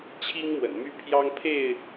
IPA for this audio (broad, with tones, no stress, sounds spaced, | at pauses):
t͡ɕʰ i˦ ŋ m w ə̰˨˩ n m y˦ pʰ j ɑ˦ ŋ pʰ e˥˨ ɪ̯